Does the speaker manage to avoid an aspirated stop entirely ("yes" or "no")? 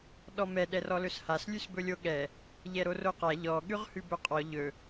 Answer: yes